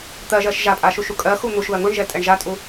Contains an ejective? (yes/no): yes